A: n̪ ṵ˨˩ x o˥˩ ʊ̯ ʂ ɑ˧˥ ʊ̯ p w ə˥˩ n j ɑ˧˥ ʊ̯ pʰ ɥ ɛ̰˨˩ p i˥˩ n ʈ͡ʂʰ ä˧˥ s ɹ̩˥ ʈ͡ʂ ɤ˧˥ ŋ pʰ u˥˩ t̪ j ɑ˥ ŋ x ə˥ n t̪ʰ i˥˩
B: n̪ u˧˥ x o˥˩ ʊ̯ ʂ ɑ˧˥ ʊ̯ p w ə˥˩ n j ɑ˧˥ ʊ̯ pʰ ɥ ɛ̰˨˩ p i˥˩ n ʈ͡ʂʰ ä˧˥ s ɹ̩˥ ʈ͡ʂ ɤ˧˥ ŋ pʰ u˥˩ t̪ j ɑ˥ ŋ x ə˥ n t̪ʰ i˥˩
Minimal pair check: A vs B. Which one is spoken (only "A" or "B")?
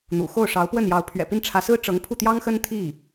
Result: A